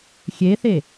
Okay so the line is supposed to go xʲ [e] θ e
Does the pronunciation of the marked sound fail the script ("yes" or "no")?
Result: no